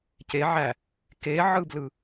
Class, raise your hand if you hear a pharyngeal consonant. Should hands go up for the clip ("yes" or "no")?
yes